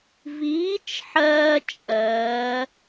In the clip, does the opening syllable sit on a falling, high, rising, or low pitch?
rising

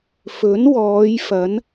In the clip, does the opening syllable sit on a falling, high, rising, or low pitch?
rising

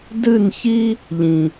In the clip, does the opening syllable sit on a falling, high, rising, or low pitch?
falling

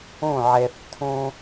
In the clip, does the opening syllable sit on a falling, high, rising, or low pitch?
falling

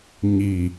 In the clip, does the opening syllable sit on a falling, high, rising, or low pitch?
low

